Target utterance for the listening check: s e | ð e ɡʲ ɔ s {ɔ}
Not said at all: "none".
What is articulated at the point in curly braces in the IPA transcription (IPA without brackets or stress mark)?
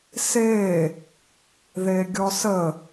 ə